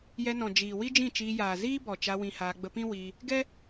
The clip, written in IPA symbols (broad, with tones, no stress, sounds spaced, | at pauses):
j ɛ˧ n ɔ̃˨ d͡ʒ iː˨ w i˦ d͡ʒ ĩ˦˨ t͡ʃ iː˧ j aː˨ z iː˦ b ɔ˨ t͡ʃ a˧ w ĩ˧ h aː˧ ɡ͡b ə˧ p ĩ˦ w i˧ | ɡ ɛ˦